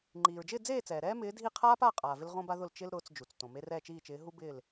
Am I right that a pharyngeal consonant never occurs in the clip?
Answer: yes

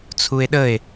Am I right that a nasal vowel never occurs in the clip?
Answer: yes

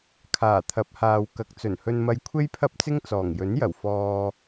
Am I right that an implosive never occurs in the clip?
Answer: yes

